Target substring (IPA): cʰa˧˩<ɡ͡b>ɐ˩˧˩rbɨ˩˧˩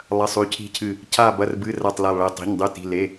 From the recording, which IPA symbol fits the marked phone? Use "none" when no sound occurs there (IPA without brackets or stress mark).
b